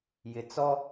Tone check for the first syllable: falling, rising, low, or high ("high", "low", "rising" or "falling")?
low